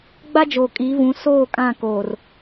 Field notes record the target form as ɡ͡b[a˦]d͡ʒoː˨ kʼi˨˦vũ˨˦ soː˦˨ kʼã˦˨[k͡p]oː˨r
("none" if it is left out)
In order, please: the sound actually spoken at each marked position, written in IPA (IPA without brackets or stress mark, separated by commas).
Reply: a˦, k